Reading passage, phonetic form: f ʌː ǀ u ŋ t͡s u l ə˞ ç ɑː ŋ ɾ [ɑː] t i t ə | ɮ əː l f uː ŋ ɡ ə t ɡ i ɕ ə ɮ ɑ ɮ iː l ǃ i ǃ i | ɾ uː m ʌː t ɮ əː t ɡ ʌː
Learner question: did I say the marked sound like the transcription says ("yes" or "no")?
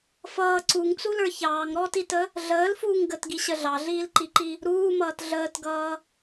no